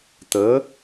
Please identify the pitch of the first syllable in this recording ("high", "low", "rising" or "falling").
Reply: rising